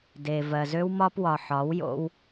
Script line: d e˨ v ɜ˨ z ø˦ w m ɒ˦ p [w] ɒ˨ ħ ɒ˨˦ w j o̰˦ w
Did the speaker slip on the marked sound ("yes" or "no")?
no